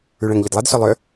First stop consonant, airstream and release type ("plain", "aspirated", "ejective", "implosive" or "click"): plain